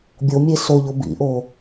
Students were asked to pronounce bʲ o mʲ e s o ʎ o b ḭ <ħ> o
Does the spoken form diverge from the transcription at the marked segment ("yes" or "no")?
yes